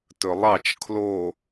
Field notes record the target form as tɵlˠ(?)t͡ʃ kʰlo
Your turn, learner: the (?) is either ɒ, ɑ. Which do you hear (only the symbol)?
ɑ